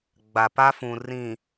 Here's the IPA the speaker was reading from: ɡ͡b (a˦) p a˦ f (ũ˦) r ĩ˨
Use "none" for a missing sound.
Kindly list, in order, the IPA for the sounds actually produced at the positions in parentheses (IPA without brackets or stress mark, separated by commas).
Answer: a˨, ũ˨